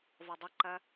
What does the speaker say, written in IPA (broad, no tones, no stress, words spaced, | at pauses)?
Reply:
vɒdˤɐǃɐ